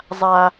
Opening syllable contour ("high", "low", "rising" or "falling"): high